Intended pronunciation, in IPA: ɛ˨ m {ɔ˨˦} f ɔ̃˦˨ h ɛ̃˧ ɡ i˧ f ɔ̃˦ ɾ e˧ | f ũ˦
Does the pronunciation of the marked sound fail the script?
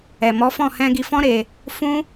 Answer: no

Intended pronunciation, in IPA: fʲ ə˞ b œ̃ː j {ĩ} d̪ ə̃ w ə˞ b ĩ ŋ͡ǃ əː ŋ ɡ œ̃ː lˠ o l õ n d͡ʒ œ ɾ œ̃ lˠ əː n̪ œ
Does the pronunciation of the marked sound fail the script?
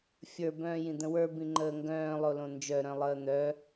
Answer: no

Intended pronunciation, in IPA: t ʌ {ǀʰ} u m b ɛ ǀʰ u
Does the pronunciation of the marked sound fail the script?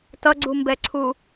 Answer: yes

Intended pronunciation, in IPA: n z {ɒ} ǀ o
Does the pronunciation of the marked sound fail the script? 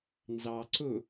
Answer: yes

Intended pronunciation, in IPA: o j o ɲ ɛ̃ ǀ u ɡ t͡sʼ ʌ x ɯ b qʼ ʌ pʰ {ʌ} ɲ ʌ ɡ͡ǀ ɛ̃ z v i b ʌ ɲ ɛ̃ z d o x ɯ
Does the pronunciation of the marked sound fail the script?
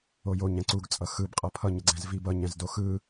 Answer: no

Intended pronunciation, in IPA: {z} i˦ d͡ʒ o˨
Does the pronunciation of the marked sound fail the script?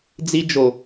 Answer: yes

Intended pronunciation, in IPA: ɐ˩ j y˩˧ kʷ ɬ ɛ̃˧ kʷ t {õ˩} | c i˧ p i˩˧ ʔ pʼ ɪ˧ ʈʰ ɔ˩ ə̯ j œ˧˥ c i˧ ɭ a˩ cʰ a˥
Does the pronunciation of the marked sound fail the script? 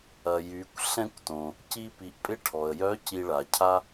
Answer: no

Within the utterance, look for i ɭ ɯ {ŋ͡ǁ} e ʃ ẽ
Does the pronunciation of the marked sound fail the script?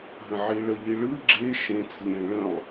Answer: yes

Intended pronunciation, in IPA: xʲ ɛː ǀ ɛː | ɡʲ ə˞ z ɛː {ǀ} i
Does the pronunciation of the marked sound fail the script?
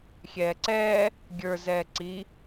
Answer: no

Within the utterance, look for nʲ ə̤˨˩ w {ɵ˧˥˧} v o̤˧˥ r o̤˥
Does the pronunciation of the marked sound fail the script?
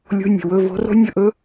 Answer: no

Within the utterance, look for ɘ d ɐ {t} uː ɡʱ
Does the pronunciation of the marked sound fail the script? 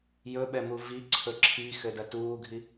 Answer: no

